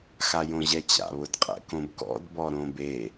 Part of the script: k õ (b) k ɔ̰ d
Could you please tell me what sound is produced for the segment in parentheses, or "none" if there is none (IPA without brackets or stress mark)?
b